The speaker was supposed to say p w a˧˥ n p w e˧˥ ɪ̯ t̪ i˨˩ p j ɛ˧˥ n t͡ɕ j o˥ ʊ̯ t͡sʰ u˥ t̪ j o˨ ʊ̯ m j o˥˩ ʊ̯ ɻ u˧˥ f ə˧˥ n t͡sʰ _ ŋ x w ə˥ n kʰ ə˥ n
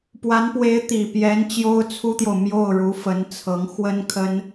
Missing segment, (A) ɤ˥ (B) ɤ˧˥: B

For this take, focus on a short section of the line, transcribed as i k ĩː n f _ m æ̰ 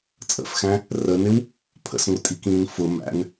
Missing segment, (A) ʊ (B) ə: A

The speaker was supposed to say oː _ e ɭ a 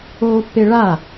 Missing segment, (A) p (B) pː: B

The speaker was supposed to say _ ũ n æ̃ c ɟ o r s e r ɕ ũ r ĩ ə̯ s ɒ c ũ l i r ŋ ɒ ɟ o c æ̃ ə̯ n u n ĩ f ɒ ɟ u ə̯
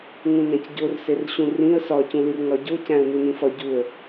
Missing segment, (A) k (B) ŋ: B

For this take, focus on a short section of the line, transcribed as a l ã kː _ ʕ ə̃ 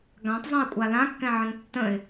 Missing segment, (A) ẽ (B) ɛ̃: B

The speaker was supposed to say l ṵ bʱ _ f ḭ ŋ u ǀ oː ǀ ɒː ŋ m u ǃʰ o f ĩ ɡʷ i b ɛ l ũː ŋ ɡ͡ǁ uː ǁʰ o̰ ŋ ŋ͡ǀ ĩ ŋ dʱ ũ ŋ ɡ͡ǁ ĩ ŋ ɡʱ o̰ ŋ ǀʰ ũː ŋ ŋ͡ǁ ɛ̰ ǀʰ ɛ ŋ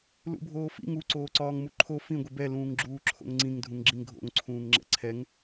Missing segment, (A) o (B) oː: B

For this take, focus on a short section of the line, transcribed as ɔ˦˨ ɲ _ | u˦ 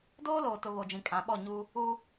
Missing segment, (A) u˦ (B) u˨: A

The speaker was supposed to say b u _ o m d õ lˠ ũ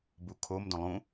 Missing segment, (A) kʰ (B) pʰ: A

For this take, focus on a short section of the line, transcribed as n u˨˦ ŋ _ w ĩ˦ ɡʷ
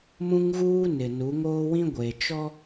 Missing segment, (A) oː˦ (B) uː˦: A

